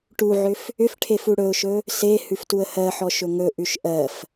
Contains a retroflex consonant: yes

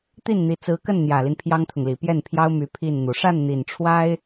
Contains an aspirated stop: yes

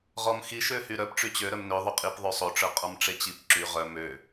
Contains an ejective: yes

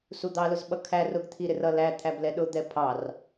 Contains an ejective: no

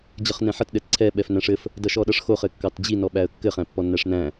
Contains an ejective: no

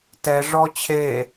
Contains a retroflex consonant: yes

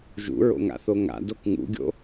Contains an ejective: no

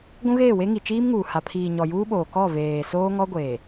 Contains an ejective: no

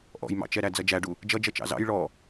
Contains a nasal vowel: no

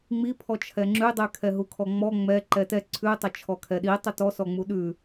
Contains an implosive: yes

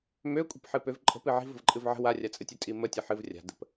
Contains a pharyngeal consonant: yes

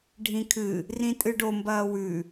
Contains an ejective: yes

